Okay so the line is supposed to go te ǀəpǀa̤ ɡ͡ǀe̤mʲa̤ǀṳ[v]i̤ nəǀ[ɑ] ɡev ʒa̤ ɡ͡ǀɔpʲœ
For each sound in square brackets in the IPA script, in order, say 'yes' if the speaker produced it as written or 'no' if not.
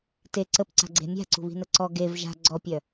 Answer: no, no

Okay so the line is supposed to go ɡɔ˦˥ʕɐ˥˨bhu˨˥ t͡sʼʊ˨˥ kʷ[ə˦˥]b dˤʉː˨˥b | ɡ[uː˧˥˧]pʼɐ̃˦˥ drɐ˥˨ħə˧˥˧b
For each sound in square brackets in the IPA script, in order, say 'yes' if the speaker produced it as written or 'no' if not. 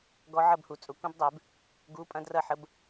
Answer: no, yes

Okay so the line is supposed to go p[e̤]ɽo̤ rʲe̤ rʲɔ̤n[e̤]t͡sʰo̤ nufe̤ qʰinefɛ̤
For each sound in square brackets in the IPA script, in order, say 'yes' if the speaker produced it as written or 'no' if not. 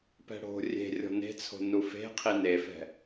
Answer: no, yes

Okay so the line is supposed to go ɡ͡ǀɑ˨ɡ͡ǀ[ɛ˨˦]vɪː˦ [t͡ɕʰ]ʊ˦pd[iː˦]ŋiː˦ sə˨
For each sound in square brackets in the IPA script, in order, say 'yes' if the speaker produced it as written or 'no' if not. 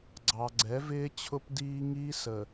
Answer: yes, yes, yes

